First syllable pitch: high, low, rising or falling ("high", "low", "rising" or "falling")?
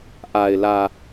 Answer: low